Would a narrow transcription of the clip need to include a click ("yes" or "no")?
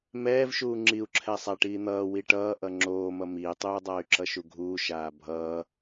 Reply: yes